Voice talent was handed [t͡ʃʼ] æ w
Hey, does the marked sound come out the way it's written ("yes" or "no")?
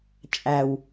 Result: yes